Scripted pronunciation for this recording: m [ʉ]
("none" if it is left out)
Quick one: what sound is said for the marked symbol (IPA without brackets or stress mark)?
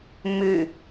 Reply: ʉ